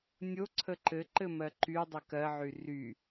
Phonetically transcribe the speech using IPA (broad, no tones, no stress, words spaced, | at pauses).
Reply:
nʲoǀʰə ǃɘǃɘ mɜǃydˤɘ kɜʕy ry